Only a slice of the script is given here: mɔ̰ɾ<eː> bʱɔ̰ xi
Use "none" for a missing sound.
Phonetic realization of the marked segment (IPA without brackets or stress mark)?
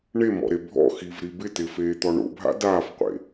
e